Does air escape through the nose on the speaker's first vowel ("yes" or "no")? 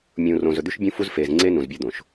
yes